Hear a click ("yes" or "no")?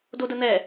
no